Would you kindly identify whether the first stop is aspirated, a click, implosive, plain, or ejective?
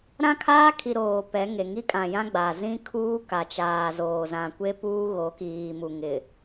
aspirated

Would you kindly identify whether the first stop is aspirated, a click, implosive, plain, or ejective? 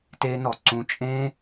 plain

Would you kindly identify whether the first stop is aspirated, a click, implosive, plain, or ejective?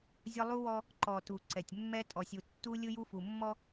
click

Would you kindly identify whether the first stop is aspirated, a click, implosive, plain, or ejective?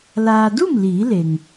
plain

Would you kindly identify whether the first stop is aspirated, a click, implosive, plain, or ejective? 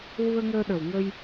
implosive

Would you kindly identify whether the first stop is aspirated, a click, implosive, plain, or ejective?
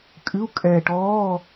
ejective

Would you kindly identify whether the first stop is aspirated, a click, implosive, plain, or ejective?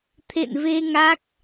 aspirated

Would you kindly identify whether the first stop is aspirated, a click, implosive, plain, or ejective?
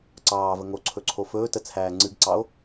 click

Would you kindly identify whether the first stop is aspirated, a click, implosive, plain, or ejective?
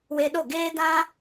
implosive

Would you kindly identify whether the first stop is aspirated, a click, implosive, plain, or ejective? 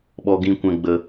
implosive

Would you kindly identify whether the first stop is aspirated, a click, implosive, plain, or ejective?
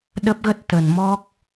implosive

